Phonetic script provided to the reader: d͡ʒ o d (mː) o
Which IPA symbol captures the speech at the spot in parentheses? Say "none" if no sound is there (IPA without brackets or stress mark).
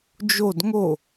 ŋ